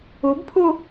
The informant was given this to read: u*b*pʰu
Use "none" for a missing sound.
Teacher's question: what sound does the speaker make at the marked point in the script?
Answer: b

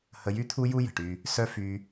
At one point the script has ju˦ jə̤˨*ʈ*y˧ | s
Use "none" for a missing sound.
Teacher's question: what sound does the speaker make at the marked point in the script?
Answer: ʈ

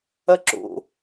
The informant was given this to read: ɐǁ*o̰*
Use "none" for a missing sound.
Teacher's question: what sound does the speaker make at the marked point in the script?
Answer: o̰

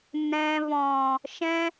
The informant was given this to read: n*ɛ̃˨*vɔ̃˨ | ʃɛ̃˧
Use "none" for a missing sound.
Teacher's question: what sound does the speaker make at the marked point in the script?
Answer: ɛ̃˨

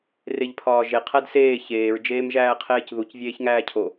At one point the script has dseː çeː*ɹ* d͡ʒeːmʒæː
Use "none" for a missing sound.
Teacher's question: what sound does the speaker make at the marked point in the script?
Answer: ɹ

